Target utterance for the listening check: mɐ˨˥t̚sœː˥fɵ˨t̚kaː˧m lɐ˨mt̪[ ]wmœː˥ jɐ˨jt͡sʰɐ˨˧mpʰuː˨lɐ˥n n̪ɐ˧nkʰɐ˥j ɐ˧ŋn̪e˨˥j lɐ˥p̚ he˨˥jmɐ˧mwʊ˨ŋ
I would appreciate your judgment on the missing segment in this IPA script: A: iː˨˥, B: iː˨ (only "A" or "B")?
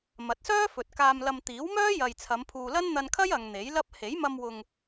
A